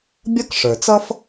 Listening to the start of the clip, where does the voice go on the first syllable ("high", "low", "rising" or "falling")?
high